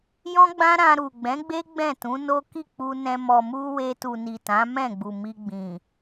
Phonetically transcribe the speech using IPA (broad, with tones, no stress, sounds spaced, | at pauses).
j ɔ̃˦ ɡ͡b ã˦ ɾ ã˧ ɾ u˨ ɡ͡b ɛ̃˨˦ ɡ͡b e˦ ɡ͡b ɛ̃˦˨ t ũ˨˦ n o˦ k i˦˨ k͡p u˧ n ɛ̃˧ m ɔ˨ m u˧ w e˧ t u˨ n i˨ t ã˨˦ m ɛ̃˦˨ ɡ͡b u˨ m i˧ ɡ͡b ĩ˨